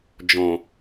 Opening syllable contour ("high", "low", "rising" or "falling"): low